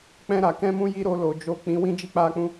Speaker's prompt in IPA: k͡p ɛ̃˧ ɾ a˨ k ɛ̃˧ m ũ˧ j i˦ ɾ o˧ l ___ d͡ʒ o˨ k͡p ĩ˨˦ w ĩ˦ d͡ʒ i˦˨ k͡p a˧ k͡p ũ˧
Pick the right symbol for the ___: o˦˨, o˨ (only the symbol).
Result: o˨